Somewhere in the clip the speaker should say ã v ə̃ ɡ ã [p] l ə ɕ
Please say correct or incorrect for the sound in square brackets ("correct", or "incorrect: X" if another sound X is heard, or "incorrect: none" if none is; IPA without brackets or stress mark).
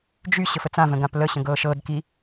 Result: correct